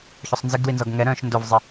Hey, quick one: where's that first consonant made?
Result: palate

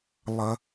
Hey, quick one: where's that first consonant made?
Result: tongue tip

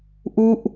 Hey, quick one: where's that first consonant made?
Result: throat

